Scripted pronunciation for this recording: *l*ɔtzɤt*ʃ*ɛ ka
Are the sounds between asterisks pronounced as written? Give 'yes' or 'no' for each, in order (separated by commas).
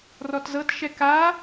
no, yes